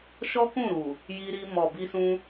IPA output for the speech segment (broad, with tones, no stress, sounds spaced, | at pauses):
ʃ ɔ˦ k ũ˦˨ ɾ u˨ | j i˧ ɾ i˧ m ɔ˨ b i˧ s ũ˧